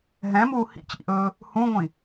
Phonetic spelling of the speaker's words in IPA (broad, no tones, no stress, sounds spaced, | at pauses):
ɦ ɛ̃ m uː h ḭ t͡ɕ ḭ ʔ ɵː | h ũ ŋʷ ĩ